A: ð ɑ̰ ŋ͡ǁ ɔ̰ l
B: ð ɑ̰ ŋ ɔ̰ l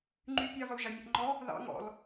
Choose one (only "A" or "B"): B